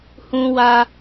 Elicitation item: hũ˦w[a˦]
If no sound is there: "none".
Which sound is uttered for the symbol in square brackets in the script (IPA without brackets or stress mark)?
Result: a˦